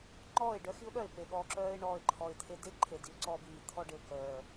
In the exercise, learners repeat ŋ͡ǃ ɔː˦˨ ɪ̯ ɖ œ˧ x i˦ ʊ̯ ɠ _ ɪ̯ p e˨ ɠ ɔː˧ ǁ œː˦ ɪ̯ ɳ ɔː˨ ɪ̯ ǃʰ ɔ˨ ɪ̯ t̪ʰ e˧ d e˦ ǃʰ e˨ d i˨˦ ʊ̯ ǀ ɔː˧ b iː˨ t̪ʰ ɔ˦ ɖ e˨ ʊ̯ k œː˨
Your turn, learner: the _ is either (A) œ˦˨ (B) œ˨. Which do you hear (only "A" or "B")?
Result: A